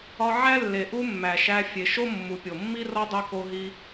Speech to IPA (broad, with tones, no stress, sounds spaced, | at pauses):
ɒ˧ ʕ æ˥ lː e˩ ʔ u˥ mː æ˩ ʃ æ˧ fʲ e˩ ʃ o˥ mː u˩ pʲ o˩ mː i˥ r ɒ˥ dˤ u˧ k o˧ ɦ i˧